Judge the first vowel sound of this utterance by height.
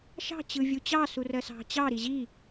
low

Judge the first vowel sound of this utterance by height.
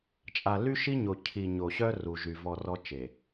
low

